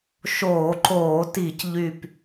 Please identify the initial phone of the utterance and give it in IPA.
ʃ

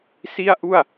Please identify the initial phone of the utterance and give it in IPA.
s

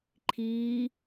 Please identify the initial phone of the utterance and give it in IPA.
ǃʰ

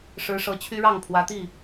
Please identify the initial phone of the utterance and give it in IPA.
ʂ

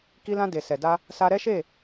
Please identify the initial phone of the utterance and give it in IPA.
k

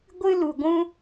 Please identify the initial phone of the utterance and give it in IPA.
ɡʷ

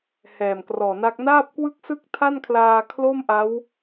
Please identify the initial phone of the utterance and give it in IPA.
h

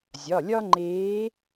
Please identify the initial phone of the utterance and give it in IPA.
zʲ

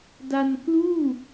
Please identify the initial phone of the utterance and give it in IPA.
d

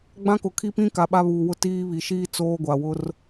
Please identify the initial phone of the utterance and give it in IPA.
ɡ͡b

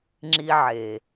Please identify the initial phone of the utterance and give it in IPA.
ŋ͡ǁ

